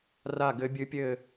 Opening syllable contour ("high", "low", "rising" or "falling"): falling